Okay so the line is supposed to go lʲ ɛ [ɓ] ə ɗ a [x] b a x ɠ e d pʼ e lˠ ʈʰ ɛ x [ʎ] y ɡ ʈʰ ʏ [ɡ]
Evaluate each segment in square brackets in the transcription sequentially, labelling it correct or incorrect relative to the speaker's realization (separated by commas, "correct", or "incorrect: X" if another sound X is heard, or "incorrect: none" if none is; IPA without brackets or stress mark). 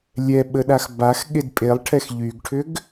correct, correct, correct, correct